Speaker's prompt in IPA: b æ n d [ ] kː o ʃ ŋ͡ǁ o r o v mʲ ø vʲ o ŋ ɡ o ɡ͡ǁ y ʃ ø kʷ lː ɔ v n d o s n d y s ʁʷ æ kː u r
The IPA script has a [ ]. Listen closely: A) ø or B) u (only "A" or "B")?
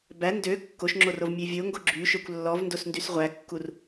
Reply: A